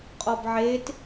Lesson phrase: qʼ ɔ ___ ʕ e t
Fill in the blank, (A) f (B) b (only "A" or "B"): B